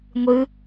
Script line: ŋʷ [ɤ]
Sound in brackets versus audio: incorrect: ɯ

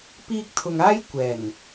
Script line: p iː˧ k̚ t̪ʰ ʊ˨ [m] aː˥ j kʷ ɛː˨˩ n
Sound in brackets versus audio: incorrect: ŋ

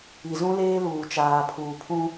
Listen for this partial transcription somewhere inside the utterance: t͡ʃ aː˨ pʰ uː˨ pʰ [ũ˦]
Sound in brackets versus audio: correct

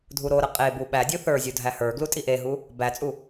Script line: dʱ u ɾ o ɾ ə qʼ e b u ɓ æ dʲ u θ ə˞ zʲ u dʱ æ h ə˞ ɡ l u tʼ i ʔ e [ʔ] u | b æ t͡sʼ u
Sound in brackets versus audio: incorrect: ɦ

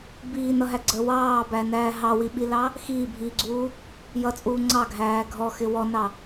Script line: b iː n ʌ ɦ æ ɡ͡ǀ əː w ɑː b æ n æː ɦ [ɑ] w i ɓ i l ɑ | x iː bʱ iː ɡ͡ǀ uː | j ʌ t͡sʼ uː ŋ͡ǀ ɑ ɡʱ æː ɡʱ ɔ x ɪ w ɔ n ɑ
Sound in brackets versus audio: correct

